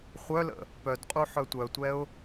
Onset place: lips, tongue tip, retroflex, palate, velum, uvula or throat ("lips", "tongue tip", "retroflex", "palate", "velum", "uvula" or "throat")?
uvula